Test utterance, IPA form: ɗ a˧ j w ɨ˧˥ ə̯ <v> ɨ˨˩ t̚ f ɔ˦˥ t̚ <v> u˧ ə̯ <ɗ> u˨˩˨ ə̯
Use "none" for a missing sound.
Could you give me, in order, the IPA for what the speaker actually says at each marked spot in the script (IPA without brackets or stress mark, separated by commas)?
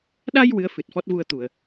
f, v, t̪